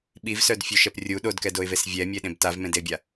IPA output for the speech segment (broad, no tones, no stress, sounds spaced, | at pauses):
ɓ i v s œ d fʲ ø ʃ ɛ p rʲ u ɗ o d k ɛ d o ɪ̯ v e s vʲ ɛ mʲ e ɗ ẽ b t a v m ẽ d e bʲ a